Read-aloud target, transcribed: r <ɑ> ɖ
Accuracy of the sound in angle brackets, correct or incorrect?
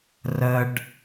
incorrect